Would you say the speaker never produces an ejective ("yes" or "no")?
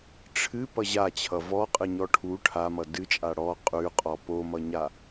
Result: no